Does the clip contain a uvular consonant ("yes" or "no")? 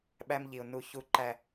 no